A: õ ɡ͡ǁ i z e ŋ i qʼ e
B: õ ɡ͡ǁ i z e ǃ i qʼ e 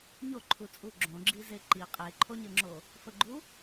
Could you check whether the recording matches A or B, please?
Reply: B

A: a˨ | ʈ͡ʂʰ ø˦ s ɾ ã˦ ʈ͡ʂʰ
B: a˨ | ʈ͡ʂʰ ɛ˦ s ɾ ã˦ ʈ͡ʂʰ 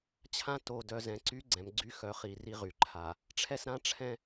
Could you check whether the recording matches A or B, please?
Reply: B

